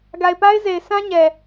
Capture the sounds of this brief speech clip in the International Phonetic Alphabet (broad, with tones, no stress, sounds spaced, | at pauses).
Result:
ɡ a˨ ɪ̯ p a˦ ɪ̯ z e˨ ɪ̯ s ã˦ ɲ ɛ˨